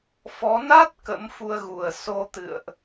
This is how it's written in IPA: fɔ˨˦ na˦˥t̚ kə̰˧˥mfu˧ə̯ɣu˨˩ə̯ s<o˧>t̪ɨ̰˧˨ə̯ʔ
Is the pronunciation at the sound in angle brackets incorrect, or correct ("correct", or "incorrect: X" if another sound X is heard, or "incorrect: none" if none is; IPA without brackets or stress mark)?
correct